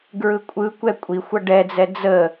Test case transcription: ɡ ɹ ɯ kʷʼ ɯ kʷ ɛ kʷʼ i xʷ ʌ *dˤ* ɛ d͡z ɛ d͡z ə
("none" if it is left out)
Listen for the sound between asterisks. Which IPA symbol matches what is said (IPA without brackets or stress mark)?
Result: ɖ